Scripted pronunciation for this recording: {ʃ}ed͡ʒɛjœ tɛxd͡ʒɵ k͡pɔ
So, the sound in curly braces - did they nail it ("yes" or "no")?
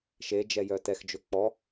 yes